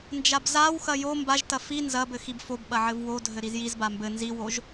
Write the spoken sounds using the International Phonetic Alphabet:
n d͡ʒ a b z a w x ɐ j o m b a ʒ t ɐ f i n z ɐ b ɘ x i b f o b ɓ ɐ ʕ ɘ v w o dʱ ɘ ɾ i z j i z b a m b ɘ n z i w o ʒ

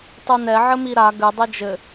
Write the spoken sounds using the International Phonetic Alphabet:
tˤ u n ɛ ʕ ɘ m i ɾ a ɡ ɘ dˤ ɘ d͡ʒ ɘ

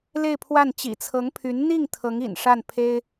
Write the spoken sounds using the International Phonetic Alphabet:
l e˥˧ ɪ̯ pʰ w a˥˩ n t͡ɕ ḭ˨˩ t͡sʰ ɤ˧˥ ŋ pʰ y˧˥ n n̪ i˥˩ ŋ t̪ʰ ɤ˧˥ ŋ ḭ˨˩ n ʂ a˥˩ n pʰ e˥ ɪ̯

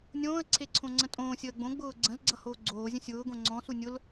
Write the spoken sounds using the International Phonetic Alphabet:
nʲ õː ə̯ ǀʰ e ǀʰ õ ŋ͡ǀ ə̃ tʼ õː sʲ əː ɡ͡b õ ɡ͡b ʊː ɡ͡ǀ ə̃ z ɡ͡ǀ ʌ h oː ɡ͡ǀ oː zʲ ə̃ sʲ ʊː ɡ õ ŋ͡ǀ ɔ̃ s u nʲ ʊ l

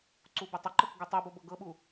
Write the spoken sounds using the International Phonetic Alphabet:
ǀ u b ɪ tˤ ə ǃ ɤ k ɡ u tˤ u b o b ɤ ɡ ɤ ɓ u

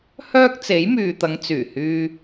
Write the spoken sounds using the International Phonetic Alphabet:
h œː˥ k̚ t͡s e˨˥ j m yː˨ t̪ ɐ˨˧ ŋ t͡s yː˨˩ h yː˧

